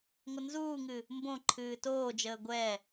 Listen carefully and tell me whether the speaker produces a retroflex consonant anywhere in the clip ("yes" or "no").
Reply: no